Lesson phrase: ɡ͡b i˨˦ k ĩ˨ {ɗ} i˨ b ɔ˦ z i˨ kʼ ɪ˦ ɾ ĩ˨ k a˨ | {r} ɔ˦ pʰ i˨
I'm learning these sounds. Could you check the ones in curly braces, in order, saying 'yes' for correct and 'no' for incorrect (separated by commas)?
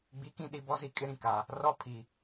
yes, yes